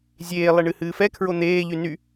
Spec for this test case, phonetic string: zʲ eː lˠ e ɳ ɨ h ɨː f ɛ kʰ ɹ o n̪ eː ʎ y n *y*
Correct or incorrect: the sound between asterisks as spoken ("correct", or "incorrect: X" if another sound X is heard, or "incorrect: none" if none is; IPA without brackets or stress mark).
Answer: correct